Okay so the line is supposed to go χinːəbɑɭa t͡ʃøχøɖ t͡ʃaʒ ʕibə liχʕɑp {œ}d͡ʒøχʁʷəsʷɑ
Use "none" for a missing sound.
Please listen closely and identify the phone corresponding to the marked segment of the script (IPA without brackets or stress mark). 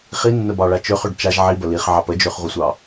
ə